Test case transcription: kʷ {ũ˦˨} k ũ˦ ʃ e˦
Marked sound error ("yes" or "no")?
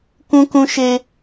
yes